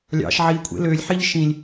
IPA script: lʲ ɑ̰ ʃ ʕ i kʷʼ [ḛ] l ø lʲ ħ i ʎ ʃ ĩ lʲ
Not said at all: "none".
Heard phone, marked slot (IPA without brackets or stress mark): ḛ